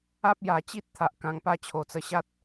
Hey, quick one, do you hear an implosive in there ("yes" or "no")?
no